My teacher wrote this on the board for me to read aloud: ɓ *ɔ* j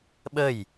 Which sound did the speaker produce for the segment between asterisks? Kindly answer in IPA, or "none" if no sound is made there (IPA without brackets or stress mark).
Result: ə